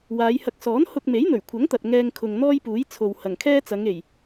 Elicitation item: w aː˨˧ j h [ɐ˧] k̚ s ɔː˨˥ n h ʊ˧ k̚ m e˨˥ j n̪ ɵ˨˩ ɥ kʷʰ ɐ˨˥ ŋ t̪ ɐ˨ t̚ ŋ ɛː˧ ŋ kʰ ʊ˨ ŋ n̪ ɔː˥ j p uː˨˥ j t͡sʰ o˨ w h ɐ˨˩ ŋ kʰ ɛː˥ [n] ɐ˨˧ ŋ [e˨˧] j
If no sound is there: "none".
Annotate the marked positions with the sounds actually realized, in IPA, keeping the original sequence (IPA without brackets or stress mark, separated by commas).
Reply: ɐ˧, t͡s, e˨˩